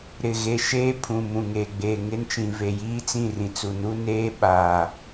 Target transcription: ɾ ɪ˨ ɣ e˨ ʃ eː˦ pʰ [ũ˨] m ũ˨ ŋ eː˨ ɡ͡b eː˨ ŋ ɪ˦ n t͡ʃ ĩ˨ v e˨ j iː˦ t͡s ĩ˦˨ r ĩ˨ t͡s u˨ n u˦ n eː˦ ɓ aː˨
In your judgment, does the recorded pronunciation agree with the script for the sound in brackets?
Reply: yes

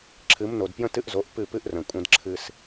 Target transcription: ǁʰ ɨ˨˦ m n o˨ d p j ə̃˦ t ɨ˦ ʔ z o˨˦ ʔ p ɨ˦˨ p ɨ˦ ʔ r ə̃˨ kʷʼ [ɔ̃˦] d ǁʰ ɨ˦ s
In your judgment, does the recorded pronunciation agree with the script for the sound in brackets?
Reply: no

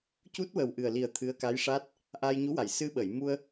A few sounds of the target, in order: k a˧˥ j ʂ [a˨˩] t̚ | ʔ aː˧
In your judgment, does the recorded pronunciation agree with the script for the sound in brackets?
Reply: no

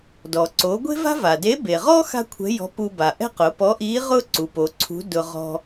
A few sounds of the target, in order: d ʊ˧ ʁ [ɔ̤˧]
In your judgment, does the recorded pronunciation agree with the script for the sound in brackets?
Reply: yes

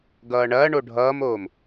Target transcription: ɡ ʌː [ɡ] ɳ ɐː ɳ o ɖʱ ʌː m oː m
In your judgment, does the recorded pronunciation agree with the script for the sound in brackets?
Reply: no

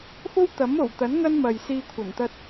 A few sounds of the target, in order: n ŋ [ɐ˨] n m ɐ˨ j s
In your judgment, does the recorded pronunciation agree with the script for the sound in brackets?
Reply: no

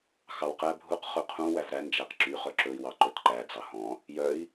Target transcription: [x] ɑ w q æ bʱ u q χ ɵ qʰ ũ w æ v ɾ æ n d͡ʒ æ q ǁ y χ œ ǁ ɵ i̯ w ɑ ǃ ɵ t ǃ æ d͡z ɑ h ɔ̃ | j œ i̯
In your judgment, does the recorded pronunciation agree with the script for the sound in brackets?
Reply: yes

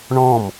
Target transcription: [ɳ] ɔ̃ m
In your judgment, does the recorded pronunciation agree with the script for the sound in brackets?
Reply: yes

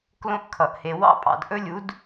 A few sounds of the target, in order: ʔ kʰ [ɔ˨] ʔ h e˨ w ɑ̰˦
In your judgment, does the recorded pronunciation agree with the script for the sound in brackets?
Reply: no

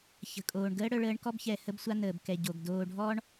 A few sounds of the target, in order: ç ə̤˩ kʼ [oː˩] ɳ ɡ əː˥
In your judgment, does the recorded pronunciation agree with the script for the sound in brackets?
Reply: yes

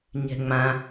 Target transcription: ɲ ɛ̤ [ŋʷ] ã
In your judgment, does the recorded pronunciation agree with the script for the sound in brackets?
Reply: no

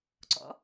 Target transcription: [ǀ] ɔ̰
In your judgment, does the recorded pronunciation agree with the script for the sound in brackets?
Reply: yes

